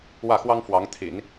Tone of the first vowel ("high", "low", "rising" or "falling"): falling